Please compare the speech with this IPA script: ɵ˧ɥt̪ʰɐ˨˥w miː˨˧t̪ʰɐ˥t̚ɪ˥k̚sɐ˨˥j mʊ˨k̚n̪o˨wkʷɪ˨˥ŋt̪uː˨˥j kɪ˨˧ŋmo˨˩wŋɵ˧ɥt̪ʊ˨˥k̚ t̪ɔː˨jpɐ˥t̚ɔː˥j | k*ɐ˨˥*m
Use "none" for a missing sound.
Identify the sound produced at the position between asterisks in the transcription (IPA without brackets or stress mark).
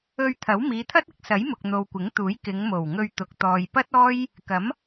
ɐ˨˥